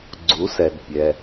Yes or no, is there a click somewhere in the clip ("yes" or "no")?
yes